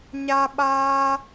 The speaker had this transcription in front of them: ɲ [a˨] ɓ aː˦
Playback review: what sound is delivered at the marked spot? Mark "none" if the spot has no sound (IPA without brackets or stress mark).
a˦